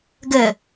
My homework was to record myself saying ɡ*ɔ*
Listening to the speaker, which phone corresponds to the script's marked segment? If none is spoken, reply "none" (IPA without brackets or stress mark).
ə